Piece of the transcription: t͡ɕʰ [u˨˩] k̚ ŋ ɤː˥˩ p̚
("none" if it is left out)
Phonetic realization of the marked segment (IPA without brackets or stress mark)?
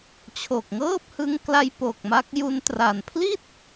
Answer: o˨˩